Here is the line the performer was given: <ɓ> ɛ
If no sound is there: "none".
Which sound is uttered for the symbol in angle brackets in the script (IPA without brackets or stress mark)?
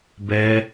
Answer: b